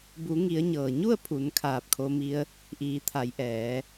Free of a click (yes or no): yes